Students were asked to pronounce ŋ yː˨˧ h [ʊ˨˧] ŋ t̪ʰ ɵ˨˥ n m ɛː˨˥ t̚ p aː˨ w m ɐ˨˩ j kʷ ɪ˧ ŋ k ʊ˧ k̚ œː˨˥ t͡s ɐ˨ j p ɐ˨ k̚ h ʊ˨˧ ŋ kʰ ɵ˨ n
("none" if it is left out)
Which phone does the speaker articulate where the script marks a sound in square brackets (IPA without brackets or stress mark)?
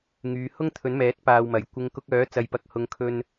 ʊ˥